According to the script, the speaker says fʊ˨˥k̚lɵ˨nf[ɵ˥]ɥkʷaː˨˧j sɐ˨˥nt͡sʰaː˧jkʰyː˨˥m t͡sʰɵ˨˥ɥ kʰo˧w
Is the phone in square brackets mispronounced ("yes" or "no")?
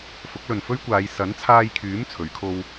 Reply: no